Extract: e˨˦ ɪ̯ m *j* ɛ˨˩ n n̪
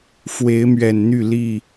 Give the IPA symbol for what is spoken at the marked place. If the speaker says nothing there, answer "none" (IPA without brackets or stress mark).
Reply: ɥ